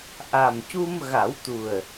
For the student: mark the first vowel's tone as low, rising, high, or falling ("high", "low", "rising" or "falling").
low